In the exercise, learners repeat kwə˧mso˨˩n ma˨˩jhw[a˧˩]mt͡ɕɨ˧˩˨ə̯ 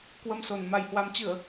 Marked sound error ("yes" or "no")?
yes